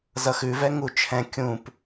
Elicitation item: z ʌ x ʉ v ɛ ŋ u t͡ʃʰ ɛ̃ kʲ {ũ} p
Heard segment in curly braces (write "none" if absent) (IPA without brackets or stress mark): ũ